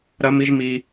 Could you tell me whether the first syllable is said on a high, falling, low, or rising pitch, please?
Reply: high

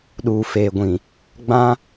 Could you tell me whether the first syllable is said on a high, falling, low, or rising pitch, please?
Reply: low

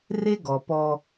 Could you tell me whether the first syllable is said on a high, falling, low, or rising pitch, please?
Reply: high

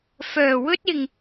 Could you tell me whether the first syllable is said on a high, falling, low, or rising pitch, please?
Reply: low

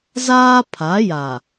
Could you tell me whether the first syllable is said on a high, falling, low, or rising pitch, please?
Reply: high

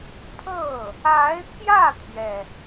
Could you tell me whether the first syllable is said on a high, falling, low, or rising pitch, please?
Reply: falling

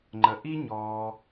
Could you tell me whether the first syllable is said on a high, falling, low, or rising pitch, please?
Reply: low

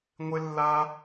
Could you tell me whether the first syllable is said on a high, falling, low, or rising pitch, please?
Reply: low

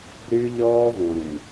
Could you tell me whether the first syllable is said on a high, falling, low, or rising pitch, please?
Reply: high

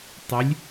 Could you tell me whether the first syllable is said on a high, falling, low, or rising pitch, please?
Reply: rising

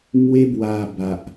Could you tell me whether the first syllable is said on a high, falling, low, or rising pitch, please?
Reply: high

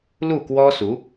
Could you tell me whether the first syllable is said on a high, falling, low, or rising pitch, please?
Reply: falling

